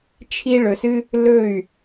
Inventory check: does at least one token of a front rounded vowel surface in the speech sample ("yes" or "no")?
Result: yes